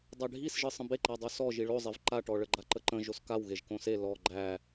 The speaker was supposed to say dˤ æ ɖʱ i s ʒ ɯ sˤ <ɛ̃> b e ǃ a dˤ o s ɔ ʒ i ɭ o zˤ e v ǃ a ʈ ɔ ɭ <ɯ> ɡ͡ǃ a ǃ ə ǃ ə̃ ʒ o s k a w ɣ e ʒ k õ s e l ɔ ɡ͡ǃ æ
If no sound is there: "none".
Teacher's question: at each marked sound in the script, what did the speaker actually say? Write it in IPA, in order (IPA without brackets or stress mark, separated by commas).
ə̃, ə